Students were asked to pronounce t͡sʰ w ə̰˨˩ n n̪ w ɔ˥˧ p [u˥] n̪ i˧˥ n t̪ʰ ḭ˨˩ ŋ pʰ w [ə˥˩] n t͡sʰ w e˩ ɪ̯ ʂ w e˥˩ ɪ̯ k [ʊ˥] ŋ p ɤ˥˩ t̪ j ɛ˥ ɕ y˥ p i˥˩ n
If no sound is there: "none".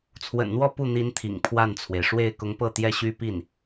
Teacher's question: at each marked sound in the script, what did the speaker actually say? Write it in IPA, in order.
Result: u˥˩, a˥˩, ʊ˧˥

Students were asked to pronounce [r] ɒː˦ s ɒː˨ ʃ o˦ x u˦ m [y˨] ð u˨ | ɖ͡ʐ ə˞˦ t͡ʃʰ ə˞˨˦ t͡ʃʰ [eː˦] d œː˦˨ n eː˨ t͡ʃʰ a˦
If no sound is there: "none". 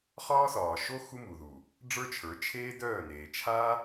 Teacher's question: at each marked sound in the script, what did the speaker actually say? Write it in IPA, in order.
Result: χ, u˨, eː˦

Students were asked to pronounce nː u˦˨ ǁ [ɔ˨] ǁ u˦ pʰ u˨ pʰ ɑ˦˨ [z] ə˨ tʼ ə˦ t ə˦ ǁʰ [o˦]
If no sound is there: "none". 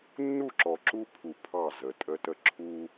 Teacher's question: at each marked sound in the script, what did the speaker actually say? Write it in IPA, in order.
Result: ɔ˨, z, u˦

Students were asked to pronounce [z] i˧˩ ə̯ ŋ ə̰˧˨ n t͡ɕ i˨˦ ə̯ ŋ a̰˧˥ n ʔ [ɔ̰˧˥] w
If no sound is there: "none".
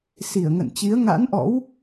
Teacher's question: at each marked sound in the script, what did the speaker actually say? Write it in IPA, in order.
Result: s, ɔ̰˧˥

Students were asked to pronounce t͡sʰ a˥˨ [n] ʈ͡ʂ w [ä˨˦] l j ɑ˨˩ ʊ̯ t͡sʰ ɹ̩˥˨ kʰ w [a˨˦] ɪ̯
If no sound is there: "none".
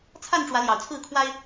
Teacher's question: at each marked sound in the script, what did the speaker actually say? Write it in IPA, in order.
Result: n, ä˨˦, a˦

